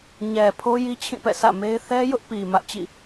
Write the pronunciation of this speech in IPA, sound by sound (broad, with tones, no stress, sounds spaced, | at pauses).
ɲ ɛ˨ pʰ o˦ j i˦ t͡ɕʰ ĩ˦˨ p ɛ̰˦˨ s ä̰˦˨ m e˦ ɪ̯ θ ɛ˦ j ʊ˦ ʔ p i˨ m ä˦ ʔ t͡ɕ ḭ˦˨